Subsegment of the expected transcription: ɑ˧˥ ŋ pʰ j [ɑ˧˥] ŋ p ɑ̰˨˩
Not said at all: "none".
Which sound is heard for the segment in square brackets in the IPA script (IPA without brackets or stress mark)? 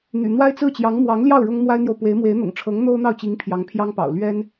ɑ˥